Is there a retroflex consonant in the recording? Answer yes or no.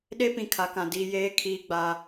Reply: no